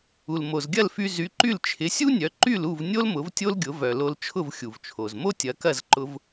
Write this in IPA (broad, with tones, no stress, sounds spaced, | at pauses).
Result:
u˩ l m o˩ z ɡʲ ɐ˥˩ l f y˧ z y˩˥ ǃ y˥˩ l t͡ʃʰ ɪ˩˥ sʲ u˥ nʲ œ˩˥ ǃ y˥˩ l u˥˩ v nʲ o˥ l m ʊ˩˥ v tʲ o˥ l ɡʲ ʊ˩˥ v œ˩ l o˧ l t͡ʃʰ ʊ˥˩ v xʲ u˩ v t͡ʃʰ o˩ z m o˥ tʲ ɐ˩˥ k ɐ˥˩ z ǃ ʊ˧ v